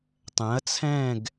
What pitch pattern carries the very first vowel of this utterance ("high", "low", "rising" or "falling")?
rising